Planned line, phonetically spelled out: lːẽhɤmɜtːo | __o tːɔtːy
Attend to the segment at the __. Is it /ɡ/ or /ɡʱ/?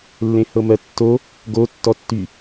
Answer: ɡ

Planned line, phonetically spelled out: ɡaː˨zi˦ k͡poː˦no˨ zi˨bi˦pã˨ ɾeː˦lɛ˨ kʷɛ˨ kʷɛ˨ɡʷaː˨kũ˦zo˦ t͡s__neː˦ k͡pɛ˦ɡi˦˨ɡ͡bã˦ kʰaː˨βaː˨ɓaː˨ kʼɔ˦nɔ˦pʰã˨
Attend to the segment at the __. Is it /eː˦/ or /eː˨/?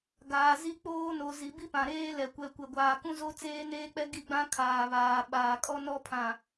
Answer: eː˦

